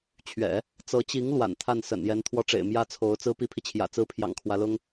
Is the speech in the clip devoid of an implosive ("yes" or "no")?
yes